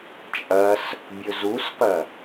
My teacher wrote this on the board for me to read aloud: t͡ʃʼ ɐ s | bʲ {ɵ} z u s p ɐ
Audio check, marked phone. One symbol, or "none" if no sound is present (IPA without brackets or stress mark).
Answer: ɵ